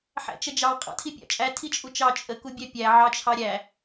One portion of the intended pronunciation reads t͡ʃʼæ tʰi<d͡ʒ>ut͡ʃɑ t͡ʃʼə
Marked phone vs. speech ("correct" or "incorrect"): incorrect